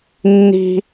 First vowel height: high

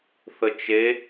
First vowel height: mid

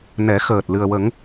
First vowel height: mid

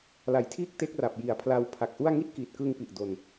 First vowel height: low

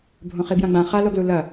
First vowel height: mid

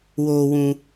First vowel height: mid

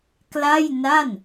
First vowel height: low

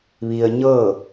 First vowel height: high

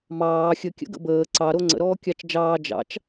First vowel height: low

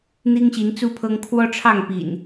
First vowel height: high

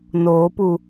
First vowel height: mid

